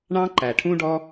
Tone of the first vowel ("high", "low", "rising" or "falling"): high